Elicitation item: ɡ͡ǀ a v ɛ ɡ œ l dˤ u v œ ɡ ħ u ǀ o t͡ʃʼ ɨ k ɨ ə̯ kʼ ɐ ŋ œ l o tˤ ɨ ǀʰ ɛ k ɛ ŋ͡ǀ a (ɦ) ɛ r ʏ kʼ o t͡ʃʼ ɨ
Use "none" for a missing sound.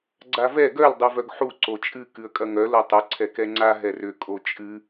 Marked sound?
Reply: ɦ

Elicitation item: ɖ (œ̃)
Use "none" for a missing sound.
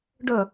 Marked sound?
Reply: œ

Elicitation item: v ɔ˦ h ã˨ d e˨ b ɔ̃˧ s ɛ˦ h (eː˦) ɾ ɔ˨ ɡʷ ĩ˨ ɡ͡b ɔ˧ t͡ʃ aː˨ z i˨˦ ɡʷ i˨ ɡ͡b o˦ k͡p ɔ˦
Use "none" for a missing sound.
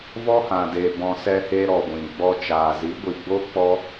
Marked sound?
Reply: e˦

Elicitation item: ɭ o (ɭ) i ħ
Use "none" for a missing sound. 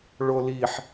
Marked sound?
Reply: l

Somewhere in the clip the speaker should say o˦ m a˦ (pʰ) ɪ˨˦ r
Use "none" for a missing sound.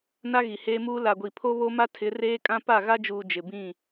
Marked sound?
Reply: tʰ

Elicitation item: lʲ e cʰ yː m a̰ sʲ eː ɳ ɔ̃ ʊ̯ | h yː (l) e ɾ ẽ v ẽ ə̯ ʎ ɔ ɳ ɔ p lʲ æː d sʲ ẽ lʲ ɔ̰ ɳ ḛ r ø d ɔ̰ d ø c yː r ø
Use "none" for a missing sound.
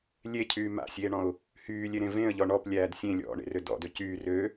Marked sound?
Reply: lʲ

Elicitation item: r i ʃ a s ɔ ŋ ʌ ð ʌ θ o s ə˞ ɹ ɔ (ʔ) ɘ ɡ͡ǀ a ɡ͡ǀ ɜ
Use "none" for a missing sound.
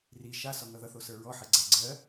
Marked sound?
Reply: ħ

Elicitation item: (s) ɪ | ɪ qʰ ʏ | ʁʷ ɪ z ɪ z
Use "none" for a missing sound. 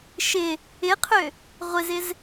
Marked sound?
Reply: ʃ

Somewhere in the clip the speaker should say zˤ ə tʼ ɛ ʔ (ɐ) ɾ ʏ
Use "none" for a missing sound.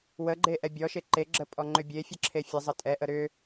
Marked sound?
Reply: ə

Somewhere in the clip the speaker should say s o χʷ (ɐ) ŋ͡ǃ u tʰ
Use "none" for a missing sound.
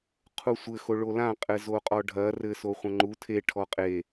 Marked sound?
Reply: ɐ̃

